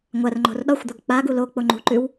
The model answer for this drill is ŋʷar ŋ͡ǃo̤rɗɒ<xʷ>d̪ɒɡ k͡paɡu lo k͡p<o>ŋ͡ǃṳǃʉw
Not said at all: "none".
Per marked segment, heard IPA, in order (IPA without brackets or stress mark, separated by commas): xʷ, o